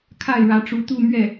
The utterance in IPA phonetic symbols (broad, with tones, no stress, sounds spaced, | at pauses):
kʰ a˥˩ ɪ̯ ɻ ä˧˥ ʈ͡ʂ u˧˥ t̪ u˥˧ m ɥ ɛ˥˩